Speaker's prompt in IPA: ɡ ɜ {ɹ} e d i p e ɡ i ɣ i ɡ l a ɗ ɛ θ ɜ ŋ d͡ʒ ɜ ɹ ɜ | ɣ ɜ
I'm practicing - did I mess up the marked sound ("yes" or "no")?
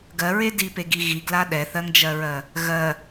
no